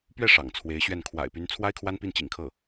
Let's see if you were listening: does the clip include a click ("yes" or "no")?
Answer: no